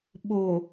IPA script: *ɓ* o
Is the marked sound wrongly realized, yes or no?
no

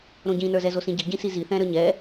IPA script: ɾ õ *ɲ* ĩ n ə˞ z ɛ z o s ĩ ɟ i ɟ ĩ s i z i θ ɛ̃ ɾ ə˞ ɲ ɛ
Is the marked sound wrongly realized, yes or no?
yes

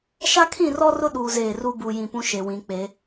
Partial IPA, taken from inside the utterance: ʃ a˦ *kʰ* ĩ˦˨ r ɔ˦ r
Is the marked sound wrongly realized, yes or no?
no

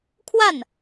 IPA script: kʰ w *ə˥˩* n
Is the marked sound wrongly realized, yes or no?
yes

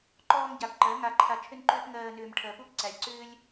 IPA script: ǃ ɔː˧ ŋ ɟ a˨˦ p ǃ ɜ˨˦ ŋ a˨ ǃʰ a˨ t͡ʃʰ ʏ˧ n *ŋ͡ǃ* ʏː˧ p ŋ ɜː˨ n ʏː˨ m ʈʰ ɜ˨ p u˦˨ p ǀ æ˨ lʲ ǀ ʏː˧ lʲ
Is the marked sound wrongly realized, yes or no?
yes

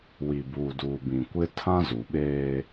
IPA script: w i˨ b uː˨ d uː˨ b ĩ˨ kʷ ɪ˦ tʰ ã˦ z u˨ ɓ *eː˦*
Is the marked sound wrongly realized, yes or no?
no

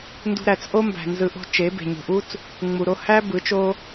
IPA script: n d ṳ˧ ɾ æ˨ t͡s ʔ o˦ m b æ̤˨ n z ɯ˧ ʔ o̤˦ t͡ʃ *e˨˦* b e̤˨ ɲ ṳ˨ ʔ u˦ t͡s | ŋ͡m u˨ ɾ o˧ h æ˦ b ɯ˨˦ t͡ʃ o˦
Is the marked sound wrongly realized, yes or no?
no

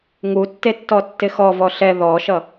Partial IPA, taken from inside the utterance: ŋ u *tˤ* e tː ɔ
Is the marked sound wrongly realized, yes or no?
yes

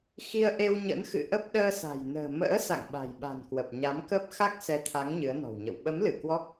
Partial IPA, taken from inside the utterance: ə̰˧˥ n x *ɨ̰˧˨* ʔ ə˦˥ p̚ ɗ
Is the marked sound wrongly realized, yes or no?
no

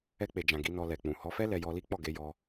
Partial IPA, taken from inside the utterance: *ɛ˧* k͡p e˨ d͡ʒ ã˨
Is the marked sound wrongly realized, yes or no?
no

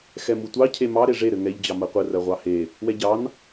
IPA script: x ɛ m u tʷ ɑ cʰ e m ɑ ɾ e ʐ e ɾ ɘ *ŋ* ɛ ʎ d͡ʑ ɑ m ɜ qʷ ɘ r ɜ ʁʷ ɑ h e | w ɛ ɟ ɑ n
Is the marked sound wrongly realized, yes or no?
no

